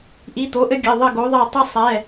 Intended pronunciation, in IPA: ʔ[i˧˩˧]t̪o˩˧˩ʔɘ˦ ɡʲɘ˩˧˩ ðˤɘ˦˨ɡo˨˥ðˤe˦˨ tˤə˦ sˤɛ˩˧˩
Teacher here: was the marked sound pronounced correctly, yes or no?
no